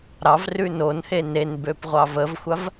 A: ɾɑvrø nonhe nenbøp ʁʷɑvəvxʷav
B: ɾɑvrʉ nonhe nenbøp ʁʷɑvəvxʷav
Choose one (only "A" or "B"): B